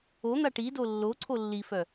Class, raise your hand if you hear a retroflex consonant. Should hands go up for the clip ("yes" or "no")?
yes